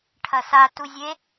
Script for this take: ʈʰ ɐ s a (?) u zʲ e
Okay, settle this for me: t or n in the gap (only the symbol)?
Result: t